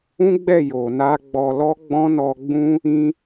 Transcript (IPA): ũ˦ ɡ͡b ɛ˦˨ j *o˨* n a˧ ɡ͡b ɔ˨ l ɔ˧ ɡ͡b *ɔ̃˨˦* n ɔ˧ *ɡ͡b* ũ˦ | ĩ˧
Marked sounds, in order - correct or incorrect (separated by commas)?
correct, incorrect, correct